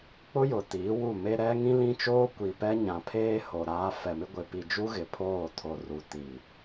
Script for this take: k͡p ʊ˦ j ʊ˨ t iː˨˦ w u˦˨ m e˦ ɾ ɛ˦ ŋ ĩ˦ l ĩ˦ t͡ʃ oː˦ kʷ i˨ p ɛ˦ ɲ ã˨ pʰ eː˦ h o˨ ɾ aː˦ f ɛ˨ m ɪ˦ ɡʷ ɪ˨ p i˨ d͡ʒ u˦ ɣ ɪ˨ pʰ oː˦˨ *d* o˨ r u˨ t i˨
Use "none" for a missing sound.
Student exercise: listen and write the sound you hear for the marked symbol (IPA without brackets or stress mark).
tʰ